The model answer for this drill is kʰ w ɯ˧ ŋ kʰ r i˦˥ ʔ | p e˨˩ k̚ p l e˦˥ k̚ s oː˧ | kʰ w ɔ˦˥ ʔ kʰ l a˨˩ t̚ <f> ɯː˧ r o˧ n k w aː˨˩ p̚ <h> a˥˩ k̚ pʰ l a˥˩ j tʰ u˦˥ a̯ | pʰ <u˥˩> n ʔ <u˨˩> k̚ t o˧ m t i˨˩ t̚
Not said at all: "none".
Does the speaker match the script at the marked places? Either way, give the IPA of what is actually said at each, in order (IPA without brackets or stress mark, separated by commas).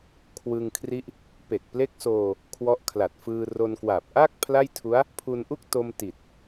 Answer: f, ʔ, u˧, u˥˩